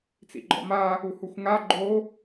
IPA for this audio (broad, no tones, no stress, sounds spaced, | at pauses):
t͡s ḭ ɡ͡ǃ ɔ̰ m a | u h u xʷ ŋ a ɡ͡ǃ o